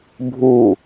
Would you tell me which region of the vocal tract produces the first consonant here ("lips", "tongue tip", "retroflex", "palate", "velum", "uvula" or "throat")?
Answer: lips